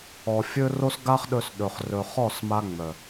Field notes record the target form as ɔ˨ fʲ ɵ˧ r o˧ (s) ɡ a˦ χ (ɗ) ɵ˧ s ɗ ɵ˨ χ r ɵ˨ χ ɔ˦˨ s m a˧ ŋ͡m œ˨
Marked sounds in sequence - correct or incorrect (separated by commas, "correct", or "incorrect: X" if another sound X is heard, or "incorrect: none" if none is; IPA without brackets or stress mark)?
correct, correct